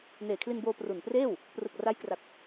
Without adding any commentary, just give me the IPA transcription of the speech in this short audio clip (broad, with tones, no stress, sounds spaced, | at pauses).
n eː˨˩ kʰ l i˧ n b oː˧ p r u˨˩ n p r eː˥˩ w | p r ɯ˨˩ k̚ r a˦˥ j k r a˨˩ k̚